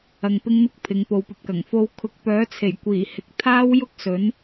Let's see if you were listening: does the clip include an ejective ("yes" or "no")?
no